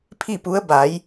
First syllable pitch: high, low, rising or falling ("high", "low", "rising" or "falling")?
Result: falling